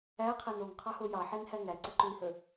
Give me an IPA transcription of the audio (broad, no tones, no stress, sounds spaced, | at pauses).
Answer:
æ qʰ æ n o ŋ qʰ ɑ h o j ɑ ħ e n h æ ŋ æ ǀ ə ǃ u i̯ h ə